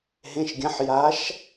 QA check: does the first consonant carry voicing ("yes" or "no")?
yes